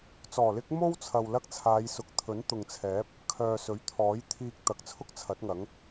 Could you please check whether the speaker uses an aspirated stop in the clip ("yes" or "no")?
yes